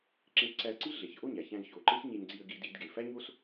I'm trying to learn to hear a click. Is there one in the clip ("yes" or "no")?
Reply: yes